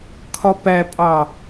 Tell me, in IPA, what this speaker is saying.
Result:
kʰɒpæpʼɑ

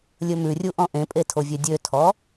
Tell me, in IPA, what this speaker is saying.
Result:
lʲɵmʉrʲu ʔɔ̃ʔẽpʼe tʰovʲœdʲøtʰɔ

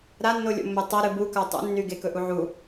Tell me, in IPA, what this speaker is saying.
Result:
ɾanːolʲo̰mːe tˤɵɾɨ buka tˤṵnːy ɡekɵʔu ʕu

